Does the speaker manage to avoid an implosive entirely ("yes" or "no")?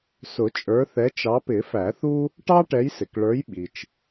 no